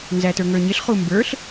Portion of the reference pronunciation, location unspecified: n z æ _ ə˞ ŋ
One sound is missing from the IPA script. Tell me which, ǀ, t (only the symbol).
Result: t